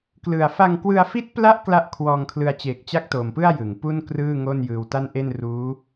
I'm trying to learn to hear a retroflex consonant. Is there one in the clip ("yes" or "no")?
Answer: no